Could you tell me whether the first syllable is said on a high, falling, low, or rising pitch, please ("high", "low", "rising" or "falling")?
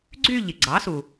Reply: falling